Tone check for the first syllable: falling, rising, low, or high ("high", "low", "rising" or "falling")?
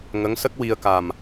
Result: rising